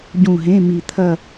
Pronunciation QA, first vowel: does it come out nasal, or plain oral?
nasal